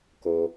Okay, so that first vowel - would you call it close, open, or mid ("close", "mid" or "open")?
mid